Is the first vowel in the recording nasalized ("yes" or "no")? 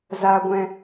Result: no